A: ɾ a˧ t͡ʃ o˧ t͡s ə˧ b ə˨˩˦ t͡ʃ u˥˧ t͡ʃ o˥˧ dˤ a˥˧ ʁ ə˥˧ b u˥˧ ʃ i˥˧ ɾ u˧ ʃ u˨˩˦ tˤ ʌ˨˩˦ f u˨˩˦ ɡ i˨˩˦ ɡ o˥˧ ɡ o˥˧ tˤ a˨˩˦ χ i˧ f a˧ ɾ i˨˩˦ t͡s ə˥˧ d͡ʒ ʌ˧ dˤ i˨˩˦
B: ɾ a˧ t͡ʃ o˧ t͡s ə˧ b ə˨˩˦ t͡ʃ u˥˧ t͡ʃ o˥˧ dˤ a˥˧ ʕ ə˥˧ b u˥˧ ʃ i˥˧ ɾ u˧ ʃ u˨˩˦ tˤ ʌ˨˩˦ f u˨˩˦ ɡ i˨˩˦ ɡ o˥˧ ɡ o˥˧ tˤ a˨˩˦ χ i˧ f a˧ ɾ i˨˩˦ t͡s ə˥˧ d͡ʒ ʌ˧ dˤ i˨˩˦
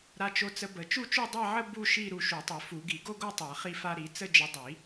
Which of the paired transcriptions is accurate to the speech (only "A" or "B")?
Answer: B